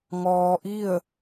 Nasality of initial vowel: oral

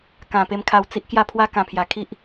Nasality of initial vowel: nasal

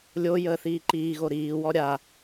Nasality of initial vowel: oral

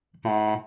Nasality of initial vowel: nasal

